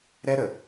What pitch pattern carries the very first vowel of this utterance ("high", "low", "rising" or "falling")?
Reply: high